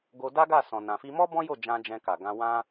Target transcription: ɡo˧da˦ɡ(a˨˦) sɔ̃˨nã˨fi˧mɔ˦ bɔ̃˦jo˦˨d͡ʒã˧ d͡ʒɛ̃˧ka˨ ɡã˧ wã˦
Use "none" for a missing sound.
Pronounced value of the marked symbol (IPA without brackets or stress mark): a˦˨